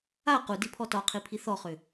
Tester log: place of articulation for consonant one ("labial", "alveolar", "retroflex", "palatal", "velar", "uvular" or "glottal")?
uvular